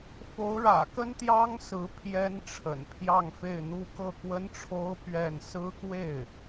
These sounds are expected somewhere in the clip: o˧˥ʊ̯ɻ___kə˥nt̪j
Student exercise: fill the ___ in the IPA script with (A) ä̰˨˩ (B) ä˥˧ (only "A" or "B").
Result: A